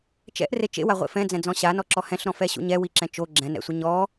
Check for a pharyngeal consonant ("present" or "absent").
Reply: absent